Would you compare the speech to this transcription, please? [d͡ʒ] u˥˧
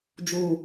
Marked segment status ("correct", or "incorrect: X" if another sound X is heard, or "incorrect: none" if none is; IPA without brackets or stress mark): correct